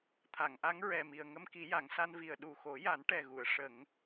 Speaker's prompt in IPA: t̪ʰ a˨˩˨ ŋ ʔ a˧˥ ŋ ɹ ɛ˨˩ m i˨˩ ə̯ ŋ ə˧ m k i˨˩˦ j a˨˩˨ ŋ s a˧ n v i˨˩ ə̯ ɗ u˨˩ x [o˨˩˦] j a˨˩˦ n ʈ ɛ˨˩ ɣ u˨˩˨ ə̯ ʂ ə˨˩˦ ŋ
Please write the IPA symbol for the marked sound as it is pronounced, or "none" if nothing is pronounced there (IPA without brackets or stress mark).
o˨˩˦